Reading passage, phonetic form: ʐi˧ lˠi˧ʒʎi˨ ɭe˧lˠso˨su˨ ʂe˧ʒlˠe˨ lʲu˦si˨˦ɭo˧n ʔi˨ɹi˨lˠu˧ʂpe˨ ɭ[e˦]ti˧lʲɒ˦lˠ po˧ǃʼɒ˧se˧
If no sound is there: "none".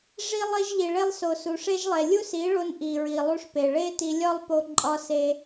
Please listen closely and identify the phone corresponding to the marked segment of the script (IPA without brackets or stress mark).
e˦